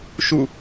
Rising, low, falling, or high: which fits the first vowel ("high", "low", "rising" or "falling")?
falling